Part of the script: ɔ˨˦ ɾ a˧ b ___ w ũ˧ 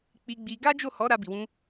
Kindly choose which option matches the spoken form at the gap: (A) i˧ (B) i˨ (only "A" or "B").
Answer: B